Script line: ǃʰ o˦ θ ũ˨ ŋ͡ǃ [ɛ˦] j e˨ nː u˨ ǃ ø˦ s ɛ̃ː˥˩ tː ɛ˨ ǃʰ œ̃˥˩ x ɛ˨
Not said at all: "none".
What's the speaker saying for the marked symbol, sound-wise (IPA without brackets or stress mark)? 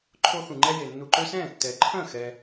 ɛ˦